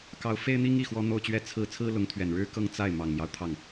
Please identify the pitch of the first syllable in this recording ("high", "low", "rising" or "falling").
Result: rising